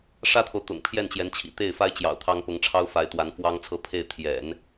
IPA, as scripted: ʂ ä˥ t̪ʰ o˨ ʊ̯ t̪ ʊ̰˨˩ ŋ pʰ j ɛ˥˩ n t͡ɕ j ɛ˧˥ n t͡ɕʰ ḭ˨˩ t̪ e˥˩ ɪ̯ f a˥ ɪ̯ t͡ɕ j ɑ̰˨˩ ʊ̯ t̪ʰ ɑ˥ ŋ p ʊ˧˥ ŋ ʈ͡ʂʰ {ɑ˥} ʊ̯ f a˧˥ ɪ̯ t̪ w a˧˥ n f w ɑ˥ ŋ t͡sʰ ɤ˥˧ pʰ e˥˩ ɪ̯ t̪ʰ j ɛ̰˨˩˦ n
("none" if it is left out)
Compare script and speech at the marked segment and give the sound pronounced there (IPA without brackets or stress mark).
ɑ˥